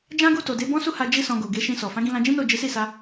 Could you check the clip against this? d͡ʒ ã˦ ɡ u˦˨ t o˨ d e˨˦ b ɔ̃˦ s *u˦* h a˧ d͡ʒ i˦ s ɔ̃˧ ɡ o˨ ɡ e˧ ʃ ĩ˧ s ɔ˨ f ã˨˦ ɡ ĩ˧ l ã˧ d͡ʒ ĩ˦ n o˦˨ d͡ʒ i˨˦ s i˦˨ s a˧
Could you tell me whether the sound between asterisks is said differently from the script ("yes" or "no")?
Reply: no